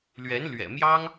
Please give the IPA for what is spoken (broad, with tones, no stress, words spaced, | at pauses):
lɥɛ˧˥nlɥɛ̰˨˩mjɑ˥ŋ